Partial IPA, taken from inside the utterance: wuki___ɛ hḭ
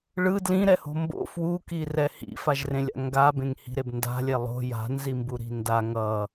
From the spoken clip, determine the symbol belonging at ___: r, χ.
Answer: r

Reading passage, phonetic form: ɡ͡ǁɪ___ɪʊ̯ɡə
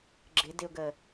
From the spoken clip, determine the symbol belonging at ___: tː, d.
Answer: d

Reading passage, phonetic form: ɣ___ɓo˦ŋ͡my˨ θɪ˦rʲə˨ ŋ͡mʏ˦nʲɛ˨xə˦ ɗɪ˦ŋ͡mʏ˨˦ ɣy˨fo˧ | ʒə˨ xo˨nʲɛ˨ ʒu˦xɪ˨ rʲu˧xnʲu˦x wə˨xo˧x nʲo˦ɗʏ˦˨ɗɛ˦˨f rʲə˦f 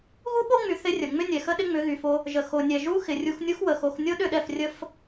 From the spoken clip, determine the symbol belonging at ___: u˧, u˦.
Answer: u˦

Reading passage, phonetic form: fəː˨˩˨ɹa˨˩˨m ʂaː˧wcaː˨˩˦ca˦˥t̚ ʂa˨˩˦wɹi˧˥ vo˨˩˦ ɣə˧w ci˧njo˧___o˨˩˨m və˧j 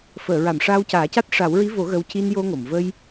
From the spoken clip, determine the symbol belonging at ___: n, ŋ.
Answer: ŋ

